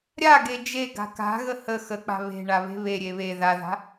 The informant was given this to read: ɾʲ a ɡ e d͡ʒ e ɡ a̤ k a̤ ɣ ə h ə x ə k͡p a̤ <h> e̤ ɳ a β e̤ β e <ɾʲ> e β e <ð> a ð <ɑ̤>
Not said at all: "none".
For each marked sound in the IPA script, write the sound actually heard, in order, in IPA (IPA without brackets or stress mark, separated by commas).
β, ɾʲ, ð, a̤